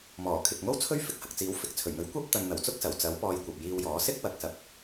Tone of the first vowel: low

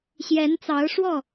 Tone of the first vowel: rising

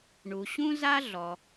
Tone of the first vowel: low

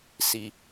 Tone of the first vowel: low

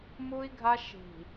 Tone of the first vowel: high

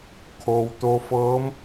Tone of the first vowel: low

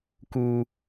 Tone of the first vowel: high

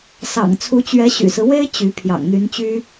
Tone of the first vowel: low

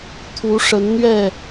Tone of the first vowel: rising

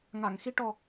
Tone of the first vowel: low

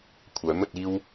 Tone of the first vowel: rising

